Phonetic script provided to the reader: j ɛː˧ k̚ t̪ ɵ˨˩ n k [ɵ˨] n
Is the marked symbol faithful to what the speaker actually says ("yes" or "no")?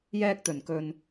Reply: yes